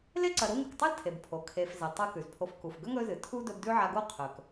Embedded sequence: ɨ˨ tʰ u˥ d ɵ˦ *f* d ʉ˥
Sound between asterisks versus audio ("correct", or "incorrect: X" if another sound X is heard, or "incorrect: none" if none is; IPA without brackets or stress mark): incorrect: b